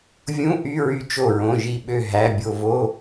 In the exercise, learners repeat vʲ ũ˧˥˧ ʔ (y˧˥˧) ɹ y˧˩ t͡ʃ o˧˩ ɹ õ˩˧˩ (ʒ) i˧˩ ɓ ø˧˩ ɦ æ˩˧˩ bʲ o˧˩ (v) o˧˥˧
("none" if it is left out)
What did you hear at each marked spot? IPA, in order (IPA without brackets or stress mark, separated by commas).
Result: y˧˥˧, ʒ, v